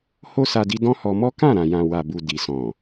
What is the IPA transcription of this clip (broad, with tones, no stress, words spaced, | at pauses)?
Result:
ho˦sa˧di˧ dɔ̃˦hɔ˧mɔ˦ kã˦˨ɾã˨jã˨ wa˨bu˨ di˨sɔ̃˨